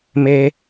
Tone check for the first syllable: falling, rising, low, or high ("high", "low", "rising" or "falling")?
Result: high